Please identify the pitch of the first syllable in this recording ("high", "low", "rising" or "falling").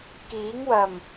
rising